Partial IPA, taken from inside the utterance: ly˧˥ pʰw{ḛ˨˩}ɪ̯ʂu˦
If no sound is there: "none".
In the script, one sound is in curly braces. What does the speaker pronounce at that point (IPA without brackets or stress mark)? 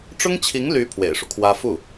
ḛ˨˩